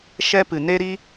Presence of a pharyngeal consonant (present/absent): absent